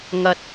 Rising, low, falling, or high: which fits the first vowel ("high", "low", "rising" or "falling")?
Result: low